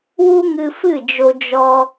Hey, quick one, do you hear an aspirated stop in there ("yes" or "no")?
no